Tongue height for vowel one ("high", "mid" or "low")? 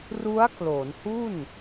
high